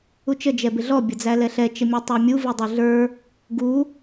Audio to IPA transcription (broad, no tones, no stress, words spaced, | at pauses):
ut͡ʃə d͡ʒɛbɪɮɔ bʲʌd͡zælɛɬɛ t͡ʃəmʲʌtˤə˞mʲu vidˤuɮə˞ | ɡu